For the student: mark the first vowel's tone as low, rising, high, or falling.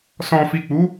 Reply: low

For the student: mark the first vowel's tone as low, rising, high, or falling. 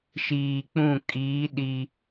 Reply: low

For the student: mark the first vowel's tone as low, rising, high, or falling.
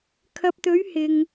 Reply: low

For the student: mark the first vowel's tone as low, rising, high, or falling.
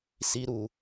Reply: high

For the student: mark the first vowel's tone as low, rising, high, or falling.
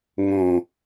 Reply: low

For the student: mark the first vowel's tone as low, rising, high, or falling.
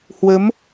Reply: rising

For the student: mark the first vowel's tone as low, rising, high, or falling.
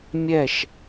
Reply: falling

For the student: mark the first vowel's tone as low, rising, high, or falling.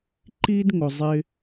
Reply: high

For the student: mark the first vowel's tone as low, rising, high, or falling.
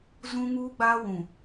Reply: high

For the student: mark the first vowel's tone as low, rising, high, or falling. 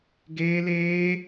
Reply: high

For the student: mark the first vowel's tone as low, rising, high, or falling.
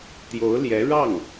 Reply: rising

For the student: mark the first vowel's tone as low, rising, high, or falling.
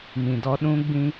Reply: low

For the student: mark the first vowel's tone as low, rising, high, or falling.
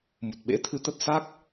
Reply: low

